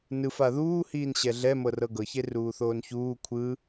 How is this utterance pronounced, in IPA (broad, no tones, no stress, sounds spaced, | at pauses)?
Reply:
n ɯ f a ð uː h iː n ɕ ɛ ɮ ɛ m ɤ r ɤ ɡ ɤ ç e r uː θ oː n ç uː kʷʰ ɯ